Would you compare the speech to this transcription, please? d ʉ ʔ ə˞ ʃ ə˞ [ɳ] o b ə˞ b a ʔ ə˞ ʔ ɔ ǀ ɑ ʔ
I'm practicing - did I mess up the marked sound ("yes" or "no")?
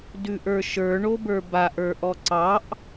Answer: no